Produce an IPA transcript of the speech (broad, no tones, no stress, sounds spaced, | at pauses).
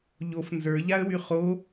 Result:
ʎ o f n z ə˞ ʎ a ə̯ w y χ o